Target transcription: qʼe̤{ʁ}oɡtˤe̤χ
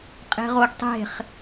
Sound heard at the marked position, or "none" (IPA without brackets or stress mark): ʁ